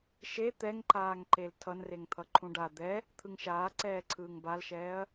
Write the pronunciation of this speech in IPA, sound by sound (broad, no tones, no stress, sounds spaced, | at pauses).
ʃ e t̪ ɛ ŋ ǃ aː ŋ ǃ e l tʰ ʌ n r e ŋ t̪ʰ ʌ ǃʰ ũ ɖ a d̪ ɛ | t̪ʰ ɯ ŋ ʃ aː ǀ ɛː ǀʰ ɯː ŋ b a l ʃ ɛː ɐ̯